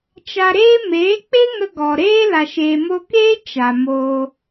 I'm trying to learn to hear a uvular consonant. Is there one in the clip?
no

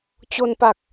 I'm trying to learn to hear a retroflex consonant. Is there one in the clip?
no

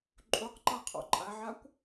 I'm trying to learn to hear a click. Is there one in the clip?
yes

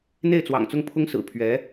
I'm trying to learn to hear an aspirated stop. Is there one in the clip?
yes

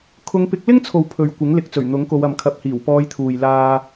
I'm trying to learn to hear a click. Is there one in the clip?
no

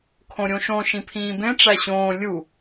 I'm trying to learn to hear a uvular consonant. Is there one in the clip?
no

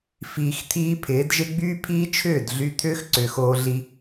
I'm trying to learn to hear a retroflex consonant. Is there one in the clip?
no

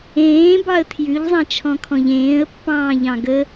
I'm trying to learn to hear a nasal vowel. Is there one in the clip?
yes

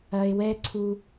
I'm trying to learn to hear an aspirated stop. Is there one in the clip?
yes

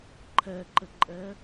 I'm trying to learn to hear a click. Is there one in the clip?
yes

